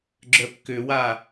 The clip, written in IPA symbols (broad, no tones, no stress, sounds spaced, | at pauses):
ɡ͡ǁ œ p k ʏ w a